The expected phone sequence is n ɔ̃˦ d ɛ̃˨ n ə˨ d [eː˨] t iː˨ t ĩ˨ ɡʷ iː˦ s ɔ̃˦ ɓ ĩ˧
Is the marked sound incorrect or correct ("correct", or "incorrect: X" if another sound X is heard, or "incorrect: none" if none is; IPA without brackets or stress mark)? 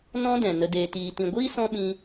correct